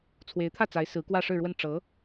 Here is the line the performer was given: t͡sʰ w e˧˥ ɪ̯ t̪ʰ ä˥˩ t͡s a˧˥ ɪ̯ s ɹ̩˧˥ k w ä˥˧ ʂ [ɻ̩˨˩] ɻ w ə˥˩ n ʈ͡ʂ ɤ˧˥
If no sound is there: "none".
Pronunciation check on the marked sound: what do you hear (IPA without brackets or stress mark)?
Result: ɻ̩˥˧